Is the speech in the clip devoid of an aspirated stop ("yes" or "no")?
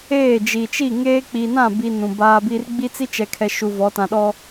no